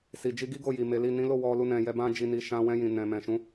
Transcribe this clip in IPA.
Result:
s i˨ d͡ʒ i˧ ɡ i˦ ɡ o˦˨ j i˨ m e˨˦ l i˦˨ n ĩ˨˦ l o˦˨ w ɔ˧ l u˧ n ɛ̃˨ j ɛ˧ b ã˦ d͡ʒ i˧ n i˧ ʃ ã˧ w ɛ̃˧ j ĩ˨ n ɛ̃˨ m ɛ̃˨ ʃ ũ˨˦

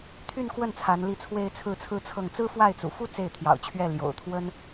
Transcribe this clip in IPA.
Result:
t̪ʰ y˥˧ n k w ə˥˩ n t͡sʰ a˧˥ n l i˥˩ t͡sʰ w e˥ ɪ̯ t͡sʰ ɹ̩˥˩ t͡sʰ ɹ̩˥ t͡sʰ ɤ˥˩ ŋ t͡s ɹ̩˥ f w a˥˩ ɪ̯ t͡s ṵ˨˩ f u˥ t͡s e˥˩ ɪ̯ t̪ʰ j ɑ̰˨˩ ʊ̯ t͡ɕʰ ɥ ɛ˥˩ l j o̰˨˩ ʊ̯ t̪ʰ w ə˥ n

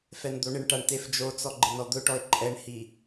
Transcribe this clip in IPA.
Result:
f ɛ n d̪ o ɳ ɪ ɳ ʈ a ɳ t e f d͡ʒ o t͡s ɔ ɡ͡ǃ ɪ n ɔ d̪ ʊ ʈ ɔ ɪ̯ ǃʼ ɛ ɳ h i

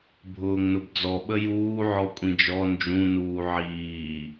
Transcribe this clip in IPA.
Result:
bʱ ʊː ŋ n ʊ b d͡z ɔ ɓ ə j uː ʕ ɔ kʷʼ ĩ d͡ʒ ɔ n d͡ʒ ũ n uː ʕ iː

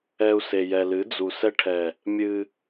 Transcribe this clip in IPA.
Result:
ɛ˧ u̯ s e˨ j ɛ˨ l ɨ˨˦ d͡z u˨ s ɛ˧ ʈʰ ɛ˨ | mʲ ɨ˧

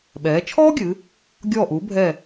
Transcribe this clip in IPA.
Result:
ɓ ɛː˩˧ t͡ʃʰ ɔː˥ ɡʲ ɨ˩˧ | ɡʲ ɔː˧˩ ʔ uː˩˧ bʱ ɛ˧˩

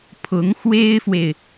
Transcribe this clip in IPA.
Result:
pʰ ʊ˧˥ ŋ x w e˥ ɪ̯ f w e˨ ɪ̯

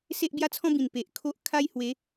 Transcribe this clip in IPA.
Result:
s e˦ ʔ b j a˦ t͡sʰ ɔ̃˦ b ĩ˨˩ n p e˨ ʔ kʰ o˦ ʔ kʰ a˦ j h w e˨˦

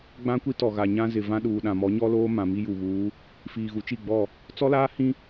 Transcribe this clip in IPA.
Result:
ɡ͡b ã˦ kʷ i˦ t ɔ˨ ɣ a˨ ɲ ã˦ z ɪ˨ v ã˦ ɗ uː˨ ɗ ã˨ m ɔ˨˦ ɲ ɔ˦ l oː˦ m ã˨ m i˦ j u˨ β uː˨˦ | f iː˨ ɣ u˨˦ t͡ʃ i˦˨ ɡ͡b ɔ˦˨ | t͡s ɔ˦ l aː˦ h ĩ˦

